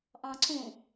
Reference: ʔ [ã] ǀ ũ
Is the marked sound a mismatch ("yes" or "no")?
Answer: yes